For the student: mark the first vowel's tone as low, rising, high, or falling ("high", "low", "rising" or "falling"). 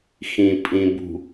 low